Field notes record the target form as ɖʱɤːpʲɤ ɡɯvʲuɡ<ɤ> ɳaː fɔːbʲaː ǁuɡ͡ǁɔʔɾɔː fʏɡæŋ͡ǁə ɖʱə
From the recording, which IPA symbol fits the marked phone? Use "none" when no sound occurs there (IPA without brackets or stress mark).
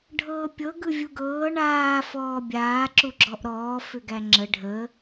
ɤː